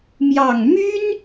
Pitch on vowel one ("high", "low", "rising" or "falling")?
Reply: low